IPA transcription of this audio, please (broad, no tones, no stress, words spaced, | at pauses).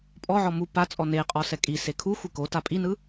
pʼɔʕɔ mu pat͡sʼɔ neqʼɔ sɛkʼise kʰuxʷi kota pʼinɯ